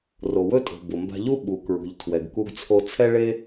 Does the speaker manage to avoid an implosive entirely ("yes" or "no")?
no